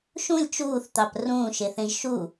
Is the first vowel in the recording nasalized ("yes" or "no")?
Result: yes